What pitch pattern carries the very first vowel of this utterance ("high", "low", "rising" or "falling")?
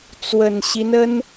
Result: low